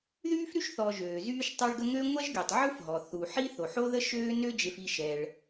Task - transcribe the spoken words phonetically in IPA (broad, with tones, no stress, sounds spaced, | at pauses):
ð yː˥ f ɾ y˥ ʃ θ ɔ˨ ʒ øː˩ z yː˦ ʃ tˤ œ˦ ɭ ɡ ə˦ ŋ ø˥ ŋʷ ɛ˥ ʒ ɡ y˩ tˤ ʕ u˥ f ɦ ɔ˩ θ u˩ ħ i˥ θ o˩ ħ o˦ ð ə˦ ʃ øː˦ n ø˦ d͡ʒ e˨ f i˨ ʃ ɛ˩ ɭ